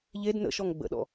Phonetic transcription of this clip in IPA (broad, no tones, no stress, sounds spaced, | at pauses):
ʎ e d n ə̰ ʃ ɔ ŋ ɡ͡b ə̰ ɗ ɔ̰